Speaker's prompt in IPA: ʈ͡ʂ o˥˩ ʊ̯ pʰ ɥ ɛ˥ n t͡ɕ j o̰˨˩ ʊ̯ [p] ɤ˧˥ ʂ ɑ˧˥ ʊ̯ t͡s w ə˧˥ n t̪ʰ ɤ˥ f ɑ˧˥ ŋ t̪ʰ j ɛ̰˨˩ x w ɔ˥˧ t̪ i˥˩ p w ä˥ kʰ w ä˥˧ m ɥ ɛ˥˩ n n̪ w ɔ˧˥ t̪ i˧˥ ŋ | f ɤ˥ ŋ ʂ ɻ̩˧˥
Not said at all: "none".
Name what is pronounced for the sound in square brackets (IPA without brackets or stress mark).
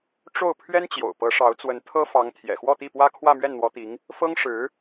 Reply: p